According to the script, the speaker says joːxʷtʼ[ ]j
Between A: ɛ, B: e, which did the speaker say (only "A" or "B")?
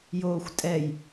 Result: A